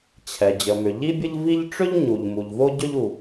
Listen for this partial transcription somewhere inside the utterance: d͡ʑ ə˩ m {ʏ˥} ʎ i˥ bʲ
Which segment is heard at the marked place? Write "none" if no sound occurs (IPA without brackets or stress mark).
ʏ˩